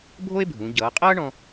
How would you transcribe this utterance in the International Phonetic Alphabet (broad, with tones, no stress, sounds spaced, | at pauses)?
bʱ o˥ e̯ bʱ ũ˩˧ ɟ ʌː˩˧ qʼ ʌː˥ ɳ ɔ̃˧